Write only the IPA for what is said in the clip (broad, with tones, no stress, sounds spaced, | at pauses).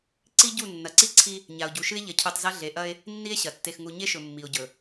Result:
ǀ i˦ ɟ u˦˨ nː ɐ˨ ǀ i˦ ǀʰ i˦ | ɲ a˨ o̯ ɟ u˨ ʃ ɨ˦ e̯ ʎ ɐ˨ cʰ u˨ tˤ z ɐ˦ ɮ e˨ ʔ ɐ˦ e̯ | nː i˦ e̯ ɕ ɐ˨ tː e˨ x ŋ u˨ ɲ e˦ ʃ ɵ˨ mː i˨ o̯ ɟ ɵ˨